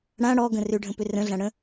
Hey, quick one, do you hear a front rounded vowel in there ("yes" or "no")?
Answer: yes